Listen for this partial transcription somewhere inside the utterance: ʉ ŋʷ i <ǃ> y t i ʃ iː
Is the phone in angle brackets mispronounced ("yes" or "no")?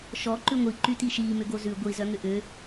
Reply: no